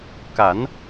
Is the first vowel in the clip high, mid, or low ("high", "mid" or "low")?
low